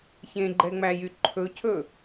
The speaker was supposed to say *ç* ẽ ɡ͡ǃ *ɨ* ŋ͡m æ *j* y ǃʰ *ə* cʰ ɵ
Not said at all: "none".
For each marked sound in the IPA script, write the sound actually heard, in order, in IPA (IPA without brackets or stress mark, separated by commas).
ç, ɛ, j, ɵ